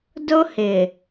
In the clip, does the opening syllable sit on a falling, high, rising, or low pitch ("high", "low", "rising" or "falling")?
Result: high